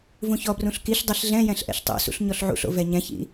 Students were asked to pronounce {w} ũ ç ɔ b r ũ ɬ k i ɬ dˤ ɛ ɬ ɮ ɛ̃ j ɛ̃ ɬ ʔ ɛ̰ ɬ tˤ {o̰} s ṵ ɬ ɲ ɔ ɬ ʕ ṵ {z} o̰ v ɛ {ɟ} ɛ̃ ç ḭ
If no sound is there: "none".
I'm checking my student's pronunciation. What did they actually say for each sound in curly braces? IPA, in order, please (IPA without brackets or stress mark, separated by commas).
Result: v, o̰, ɬ, ɲ